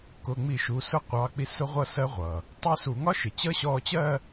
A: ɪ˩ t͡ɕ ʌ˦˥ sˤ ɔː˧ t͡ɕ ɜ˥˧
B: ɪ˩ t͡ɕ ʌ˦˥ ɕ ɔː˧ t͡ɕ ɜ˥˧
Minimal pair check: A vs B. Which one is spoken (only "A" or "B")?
B